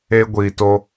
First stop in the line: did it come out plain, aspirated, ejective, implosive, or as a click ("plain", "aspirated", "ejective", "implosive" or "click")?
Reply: plain